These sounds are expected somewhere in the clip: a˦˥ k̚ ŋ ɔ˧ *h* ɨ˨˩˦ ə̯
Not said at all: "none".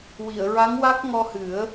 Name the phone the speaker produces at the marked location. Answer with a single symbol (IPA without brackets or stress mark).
h